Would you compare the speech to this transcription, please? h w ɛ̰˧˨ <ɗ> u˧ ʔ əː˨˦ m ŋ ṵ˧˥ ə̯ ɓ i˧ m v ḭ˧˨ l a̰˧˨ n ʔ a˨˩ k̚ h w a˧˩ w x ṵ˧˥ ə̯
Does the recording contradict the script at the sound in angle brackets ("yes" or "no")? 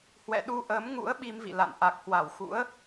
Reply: no